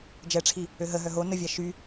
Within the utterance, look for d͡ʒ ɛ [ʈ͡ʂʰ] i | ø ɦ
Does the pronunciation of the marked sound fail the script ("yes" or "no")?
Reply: no